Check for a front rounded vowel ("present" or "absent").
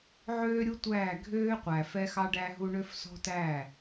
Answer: present